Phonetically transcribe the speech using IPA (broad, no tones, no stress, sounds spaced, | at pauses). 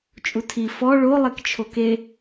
t͡ʃʼ u tʰ i f ɔ ɭ o lˠ e k t͡ʃʰ o k e